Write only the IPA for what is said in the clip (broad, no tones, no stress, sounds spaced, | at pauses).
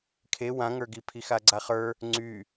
kʰ e w ã ŋ ə˞ ɡ i pʰ i x a ɡ͡ǀ a χ ə˞ | ŋ͡ǀ y